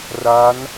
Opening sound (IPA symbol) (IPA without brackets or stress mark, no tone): r